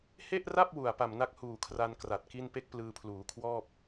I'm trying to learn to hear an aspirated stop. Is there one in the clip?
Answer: yes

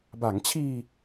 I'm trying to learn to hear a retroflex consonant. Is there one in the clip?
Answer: no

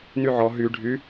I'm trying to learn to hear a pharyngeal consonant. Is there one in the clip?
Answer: yes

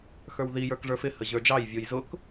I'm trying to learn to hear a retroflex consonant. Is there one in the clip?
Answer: yes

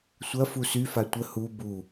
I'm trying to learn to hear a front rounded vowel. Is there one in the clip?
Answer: yes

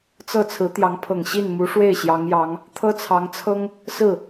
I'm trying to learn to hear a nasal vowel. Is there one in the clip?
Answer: no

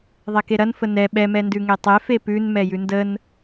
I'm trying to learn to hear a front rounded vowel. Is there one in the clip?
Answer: no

